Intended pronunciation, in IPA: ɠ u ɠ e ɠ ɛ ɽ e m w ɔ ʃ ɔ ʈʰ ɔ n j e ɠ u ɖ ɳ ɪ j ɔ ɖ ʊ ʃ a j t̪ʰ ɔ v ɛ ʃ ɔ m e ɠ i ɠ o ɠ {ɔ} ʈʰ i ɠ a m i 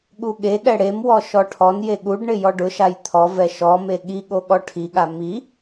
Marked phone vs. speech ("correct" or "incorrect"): correct